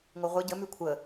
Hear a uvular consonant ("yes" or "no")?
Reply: yes